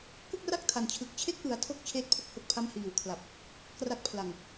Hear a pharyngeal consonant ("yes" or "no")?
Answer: no